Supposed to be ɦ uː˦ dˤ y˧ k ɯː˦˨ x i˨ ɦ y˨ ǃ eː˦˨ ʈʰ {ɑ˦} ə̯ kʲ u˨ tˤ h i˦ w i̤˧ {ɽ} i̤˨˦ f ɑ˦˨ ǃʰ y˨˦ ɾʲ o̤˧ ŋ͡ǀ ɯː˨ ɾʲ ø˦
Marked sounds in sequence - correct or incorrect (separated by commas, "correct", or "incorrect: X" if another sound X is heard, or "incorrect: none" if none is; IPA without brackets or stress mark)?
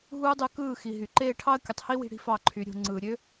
correct, correct